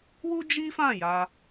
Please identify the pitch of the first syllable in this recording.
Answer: high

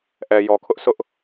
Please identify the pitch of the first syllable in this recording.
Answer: low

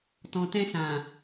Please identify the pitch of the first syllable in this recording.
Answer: low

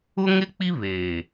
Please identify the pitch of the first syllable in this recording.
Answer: high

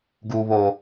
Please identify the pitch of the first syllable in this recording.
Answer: low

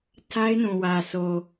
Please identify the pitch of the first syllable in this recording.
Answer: high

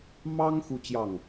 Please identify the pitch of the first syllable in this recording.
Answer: high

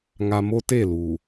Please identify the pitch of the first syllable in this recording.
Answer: low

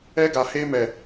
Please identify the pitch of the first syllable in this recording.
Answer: high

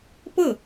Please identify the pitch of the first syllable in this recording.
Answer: falling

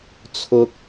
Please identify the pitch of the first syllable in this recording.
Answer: high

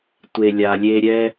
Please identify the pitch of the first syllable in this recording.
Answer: low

